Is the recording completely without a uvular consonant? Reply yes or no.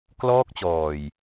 yes